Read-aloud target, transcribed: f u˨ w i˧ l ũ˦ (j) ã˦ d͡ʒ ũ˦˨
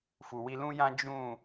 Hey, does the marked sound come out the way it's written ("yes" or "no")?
yes